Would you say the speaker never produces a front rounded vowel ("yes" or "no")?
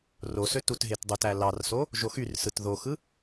no